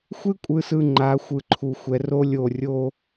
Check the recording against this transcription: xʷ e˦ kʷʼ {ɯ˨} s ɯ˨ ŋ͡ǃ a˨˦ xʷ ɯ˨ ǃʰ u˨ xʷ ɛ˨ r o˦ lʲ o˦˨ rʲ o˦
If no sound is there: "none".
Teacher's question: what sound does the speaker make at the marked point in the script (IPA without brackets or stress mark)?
ɯ˨